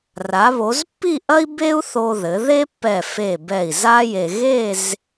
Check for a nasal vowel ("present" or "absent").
absent